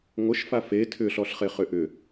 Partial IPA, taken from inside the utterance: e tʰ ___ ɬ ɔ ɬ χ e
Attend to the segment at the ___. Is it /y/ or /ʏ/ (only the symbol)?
ʏ